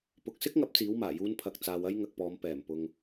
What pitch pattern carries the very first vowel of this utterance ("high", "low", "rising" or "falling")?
low